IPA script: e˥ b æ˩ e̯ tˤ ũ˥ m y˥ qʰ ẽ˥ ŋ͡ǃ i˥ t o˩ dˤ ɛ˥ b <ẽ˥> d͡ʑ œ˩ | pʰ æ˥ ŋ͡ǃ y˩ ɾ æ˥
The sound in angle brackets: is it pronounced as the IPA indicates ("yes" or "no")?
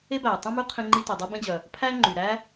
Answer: yes